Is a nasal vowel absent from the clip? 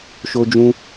no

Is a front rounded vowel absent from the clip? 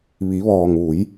yes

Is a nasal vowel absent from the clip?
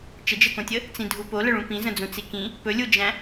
no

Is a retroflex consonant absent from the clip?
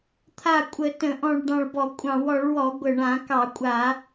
no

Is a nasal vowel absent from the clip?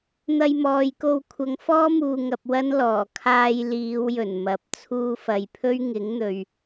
yes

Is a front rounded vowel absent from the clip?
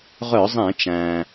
no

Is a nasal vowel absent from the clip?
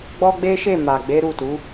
yes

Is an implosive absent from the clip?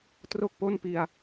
yes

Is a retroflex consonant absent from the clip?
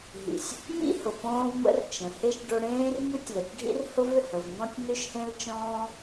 no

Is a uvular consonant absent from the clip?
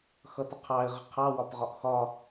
no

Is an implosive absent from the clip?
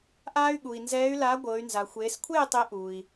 no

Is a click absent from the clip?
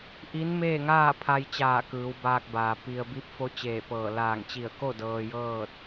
yes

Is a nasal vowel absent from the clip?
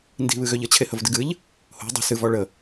yes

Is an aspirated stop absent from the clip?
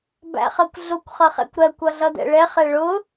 yes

